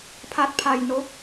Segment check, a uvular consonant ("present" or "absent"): absent